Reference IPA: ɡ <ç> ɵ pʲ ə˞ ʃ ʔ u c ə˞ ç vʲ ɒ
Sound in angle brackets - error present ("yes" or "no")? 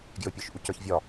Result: yes